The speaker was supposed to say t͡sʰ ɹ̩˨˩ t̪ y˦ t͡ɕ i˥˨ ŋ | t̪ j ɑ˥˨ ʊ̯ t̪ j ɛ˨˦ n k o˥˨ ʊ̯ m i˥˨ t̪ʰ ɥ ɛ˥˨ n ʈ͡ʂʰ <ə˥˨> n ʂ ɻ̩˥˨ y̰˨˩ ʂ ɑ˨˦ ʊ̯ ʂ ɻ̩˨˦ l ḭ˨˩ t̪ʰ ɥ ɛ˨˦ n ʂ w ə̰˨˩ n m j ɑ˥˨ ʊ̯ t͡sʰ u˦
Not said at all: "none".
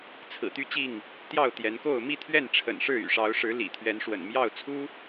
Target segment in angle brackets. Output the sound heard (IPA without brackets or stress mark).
ə̰˨˩